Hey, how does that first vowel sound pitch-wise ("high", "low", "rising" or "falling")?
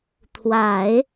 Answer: low